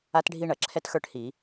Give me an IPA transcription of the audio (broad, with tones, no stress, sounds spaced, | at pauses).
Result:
a˥ t ɖʱ i˥ ɳ ɐ˧˩˧ ǁʰ ɛ˥ t x ə˞˥ ʈ h i˧˩˧